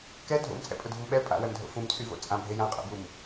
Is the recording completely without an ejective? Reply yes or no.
no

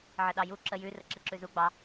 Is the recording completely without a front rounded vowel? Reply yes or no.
yes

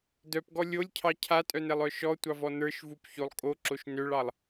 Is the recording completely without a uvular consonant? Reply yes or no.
yes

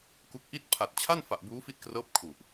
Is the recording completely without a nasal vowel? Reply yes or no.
yes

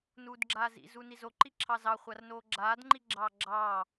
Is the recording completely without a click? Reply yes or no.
no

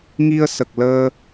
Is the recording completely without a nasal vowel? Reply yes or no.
yes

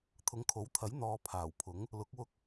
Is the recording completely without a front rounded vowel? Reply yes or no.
yes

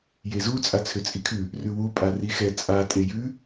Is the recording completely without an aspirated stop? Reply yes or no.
no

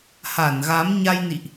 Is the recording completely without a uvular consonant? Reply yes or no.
yes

